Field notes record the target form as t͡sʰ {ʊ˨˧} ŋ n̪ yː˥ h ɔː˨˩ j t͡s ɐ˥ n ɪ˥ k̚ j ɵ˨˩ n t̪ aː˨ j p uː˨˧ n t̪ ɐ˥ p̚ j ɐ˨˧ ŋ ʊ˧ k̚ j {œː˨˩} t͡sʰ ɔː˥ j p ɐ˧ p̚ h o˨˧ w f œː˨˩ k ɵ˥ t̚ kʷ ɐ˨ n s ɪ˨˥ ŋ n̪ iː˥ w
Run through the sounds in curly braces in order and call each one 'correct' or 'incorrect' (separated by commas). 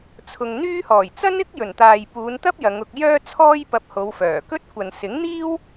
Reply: incorrect, incorrect